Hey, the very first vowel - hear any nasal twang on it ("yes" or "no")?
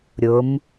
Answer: no